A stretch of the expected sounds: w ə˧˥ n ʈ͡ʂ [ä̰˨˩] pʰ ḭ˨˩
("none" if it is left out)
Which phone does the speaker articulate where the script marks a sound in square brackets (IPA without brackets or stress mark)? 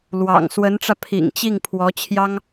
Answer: ä˧